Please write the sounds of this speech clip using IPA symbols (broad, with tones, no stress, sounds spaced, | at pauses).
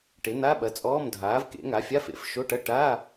ʈ e˨˥ n̪ a˧˥˧ ɓ ɐ˨˥ t͡sʼ ɔː˧˥˧ m dʱ aː˨˥ v k ḛ˨˥ ŋ a˨˥ fʲ a˧˥˧ f ḛ˨˥ f ʃ o˧˥˧ ʈ ɐ˧˥˧ ʈ a˧˥˧